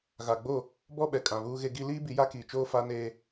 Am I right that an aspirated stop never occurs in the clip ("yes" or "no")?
yes